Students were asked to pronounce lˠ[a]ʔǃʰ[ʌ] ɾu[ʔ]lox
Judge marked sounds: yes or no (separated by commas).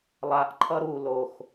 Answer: yes, yes, no